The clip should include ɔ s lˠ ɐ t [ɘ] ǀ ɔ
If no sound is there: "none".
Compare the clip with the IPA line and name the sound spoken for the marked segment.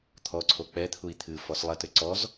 ɘ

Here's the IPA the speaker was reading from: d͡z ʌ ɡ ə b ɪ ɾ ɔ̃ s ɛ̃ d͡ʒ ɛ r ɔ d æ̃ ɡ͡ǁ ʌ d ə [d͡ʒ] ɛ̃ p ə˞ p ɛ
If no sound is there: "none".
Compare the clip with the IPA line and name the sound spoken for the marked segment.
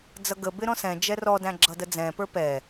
d͡z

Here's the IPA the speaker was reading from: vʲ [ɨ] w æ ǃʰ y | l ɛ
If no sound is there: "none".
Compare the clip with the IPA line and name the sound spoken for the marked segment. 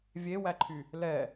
e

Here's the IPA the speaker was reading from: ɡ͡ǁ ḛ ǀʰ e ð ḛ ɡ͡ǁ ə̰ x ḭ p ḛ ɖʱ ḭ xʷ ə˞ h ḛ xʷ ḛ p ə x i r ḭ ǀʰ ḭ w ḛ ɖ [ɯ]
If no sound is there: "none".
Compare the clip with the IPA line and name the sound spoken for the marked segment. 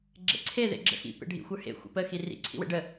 ə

